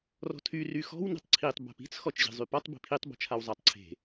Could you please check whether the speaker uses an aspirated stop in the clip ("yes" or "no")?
yes